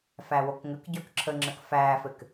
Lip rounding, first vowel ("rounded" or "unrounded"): unrounded